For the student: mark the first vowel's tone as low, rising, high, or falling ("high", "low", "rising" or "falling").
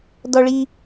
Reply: high